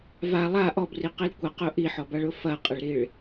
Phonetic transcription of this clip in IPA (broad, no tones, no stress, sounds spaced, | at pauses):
v a lˠ a ʔ ɔ b r i q i l kʷ ɐ q ʊ ʔ i ħ ɔ b a ɭ ʊ f ɐ qʼ ɐ ɭ ɾ i ɭ